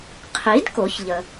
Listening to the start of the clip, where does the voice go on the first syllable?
rising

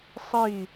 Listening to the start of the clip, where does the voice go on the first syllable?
falling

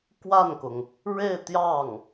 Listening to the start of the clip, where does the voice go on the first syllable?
falling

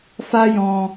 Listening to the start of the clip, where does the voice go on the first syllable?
high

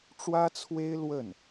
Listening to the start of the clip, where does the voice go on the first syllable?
high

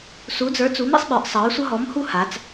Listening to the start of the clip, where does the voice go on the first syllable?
rising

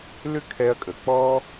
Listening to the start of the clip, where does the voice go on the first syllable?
high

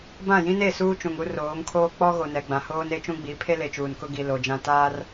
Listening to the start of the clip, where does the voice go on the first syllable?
falling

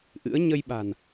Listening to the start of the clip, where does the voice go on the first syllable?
rising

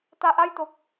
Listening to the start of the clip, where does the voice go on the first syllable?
low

